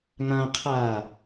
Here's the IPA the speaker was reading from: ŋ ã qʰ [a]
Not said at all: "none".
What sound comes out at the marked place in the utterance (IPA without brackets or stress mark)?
aː